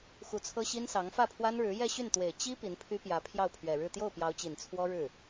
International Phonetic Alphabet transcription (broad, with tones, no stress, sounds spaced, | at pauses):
x u˧˥ t͡sʰ ɤ˥ ɕ i˥ n s ɑ˧˥ ŋ f ä˥˩ pʰ w a˥ n ɻ ɻ̩˧˥ j ɛ˥˧ ɕ y˥˩ n t̪ w e˨˩ ɪ̯ t͡ɕ i˥ p i˧˥ n pʰ y˥ p j ä˧˥ pʰ j ɑ˥˩ ʊ̯ pʰ ɥ ɛ˨˩ ɻ ɻ̩˥˧ t̪ j o˥˩ ʊ̯ p j ɑ˧˥ ʊ̯ t͡ɕ i˨˩ n t͡sʰ w ɔ˥ ɻ ɻ̩˥˩